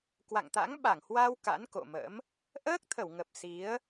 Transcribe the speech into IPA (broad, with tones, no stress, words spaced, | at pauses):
kwa̰˧˨ŋt̪a̰˧˥ŋ ɓa˧˩ŋhwa˧w ka̰˧˥nko̰˧˨mə̰˧˥m | ʔəː˦˥k̚t̪ʰə˧˩wŋə˨˩p̚ si˨˦ə̯